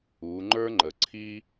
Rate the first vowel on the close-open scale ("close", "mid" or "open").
close